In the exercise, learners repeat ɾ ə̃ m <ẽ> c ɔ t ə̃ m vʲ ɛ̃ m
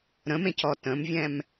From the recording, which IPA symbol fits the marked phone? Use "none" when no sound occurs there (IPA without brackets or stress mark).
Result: ẽ